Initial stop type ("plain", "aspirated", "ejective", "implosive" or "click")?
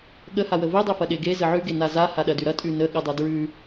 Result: implosive